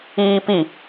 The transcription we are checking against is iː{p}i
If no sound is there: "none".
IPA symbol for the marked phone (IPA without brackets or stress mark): p